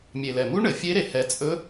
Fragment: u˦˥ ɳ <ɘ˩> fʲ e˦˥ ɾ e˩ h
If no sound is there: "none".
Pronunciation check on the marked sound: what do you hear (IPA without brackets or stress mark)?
ɘ˩